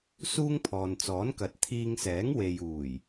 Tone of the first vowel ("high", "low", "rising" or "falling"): high